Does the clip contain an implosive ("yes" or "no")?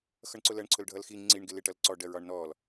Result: no